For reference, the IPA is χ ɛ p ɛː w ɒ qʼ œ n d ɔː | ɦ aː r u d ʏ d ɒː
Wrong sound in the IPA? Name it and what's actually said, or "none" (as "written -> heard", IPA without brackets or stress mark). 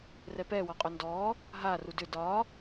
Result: χ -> r